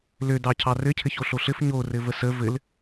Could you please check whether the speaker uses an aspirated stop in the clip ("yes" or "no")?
yes